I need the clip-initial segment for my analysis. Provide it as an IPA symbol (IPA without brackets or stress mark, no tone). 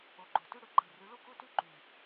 o